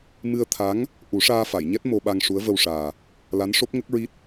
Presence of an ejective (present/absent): absent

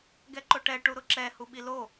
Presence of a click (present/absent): present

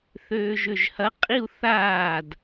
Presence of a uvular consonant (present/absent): present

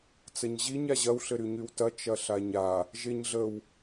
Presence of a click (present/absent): absent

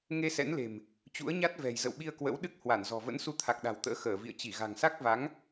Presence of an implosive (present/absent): present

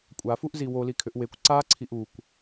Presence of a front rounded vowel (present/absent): present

